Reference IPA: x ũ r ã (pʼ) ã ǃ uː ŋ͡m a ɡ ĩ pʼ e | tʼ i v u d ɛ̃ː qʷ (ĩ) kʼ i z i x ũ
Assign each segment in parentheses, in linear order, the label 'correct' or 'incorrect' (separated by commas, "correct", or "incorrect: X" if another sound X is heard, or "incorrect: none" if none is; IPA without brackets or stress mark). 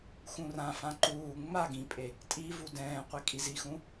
incorrect: f, incorrect: i